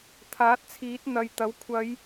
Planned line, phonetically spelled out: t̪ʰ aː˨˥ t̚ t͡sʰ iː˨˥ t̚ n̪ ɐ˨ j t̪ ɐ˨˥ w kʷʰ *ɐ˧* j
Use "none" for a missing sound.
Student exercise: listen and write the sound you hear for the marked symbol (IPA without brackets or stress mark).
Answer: ɐ˨˧